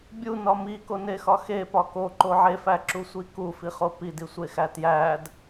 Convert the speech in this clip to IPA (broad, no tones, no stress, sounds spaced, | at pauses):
bʲ u n ɒ m i k o n e x ɒ x e p ɒ k o ǃ o ʕ e f æ ǁ u sʷ i k u f i χ o p i d i sʷ e x æ t j æ d